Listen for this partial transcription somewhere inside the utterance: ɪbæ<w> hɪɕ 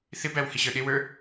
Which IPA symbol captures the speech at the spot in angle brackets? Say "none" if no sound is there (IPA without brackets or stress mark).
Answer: w